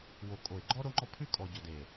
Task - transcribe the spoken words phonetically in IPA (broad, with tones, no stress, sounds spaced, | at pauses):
w o˨ kʼ o˨ ɪ̯ ɡ͡ǃ ɔ˦ ɾ o˦ ŋ͡ǃ ɔ˦ pʰ ʉ˦ kʼ ɔ˨ ɟ ɔ˨ d e˨